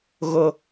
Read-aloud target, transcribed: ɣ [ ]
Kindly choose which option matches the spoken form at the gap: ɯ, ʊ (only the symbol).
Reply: ʊ